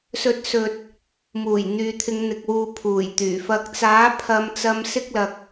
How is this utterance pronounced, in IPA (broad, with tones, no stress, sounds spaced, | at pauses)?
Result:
s ɵ˨ t̚ s ɵ˨ t̚ | m uː˨˩ j n̪ yː˨ t̪ʰ ɪ˨˧ ŋ n̪ ɪ˨ k̚ w uː˨ pʰ uː˨˩ j t̪ yː˨˩ f ɐ˧ k̚ t͡s aː˨˥ pʰ ɐ˨˧ m t͡s ɐ˧ m s ɪ˥ k̚ l ɐ˧ k̚